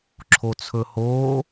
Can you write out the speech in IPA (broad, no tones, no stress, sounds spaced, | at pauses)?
ǁʰ o t͡sʰ ɵ h oː